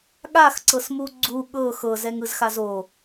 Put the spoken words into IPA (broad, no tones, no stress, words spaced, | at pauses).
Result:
ɠaxǀɤsmu ɡ͡ǀu ɠɤ xɤzɛŋɯzxaz o